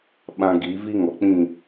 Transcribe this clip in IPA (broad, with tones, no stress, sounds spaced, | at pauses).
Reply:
ɓ ã˦ ɡ i˨˦ v i˦ ŋ ɔ˨ k͡p ĩ˦˨